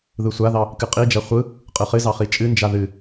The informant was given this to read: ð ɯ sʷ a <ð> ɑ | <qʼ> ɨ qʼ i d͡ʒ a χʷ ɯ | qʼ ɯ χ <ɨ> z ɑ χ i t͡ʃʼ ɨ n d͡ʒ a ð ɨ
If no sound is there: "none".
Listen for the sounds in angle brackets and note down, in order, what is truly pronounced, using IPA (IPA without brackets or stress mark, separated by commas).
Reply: ð, k, ɨ